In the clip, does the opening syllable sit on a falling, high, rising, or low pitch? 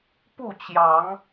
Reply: falling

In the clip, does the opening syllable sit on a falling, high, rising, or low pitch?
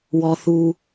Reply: low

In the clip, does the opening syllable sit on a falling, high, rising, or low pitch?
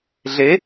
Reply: rising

